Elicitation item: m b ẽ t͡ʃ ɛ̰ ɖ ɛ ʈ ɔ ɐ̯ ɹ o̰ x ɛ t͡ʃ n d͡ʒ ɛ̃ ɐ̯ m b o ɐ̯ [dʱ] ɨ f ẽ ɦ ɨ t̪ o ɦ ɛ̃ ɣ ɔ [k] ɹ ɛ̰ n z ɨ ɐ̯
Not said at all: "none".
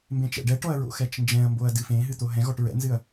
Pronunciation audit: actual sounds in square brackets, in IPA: d, ʈ

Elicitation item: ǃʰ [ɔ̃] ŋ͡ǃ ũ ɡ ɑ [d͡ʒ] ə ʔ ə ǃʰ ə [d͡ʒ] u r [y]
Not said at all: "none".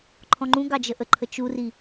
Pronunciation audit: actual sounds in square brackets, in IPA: ɔ̃, d͡ʒ, t͡ʃ, i

